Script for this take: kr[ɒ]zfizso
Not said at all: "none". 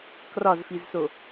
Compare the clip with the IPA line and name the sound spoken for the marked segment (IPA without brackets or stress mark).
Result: ɒ